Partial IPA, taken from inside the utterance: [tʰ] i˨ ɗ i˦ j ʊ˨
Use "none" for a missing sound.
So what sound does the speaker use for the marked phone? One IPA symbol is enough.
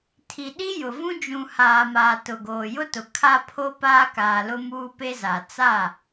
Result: tʰ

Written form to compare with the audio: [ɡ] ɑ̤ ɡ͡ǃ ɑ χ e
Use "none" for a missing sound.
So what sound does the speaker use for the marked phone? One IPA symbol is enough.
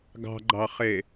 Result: ɡ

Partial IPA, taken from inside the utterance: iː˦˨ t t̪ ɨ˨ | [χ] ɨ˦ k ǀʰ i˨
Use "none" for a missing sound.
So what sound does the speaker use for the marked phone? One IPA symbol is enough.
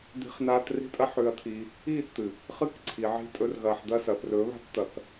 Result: χ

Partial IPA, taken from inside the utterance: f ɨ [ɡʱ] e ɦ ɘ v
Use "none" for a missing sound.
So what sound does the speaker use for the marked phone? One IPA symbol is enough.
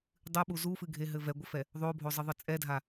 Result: ɡʱ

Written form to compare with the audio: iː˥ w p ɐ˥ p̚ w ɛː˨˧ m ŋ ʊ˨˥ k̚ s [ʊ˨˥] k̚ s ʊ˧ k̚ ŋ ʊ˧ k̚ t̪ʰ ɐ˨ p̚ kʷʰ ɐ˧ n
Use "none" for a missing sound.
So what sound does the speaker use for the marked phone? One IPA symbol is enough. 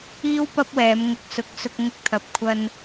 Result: ʊ˨˥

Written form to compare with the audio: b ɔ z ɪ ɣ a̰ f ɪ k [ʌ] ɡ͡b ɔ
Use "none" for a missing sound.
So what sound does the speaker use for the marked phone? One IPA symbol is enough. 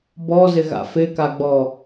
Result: a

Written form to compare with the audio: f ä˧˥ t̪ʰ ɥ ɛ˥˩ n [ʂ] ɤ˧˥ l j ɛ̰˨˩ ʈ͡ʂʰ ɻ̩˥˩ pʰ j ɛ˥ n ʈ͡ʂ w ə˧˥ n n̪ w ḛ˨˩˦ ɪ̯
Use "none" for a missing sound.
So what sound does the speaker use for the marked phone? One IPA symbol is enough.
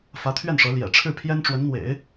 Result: ʂ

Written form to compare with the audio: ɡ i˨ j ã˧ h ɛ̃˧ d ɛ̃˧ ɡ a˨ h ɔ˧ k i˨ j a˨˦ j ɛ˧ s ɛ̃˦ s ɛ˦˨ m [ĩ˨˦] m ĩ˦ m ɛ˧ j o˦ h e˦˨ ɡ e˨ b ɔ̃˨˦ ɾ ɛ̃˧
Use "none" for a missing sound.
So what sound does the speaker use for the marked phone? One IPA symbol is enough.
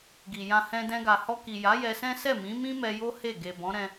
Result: ĩ˨˦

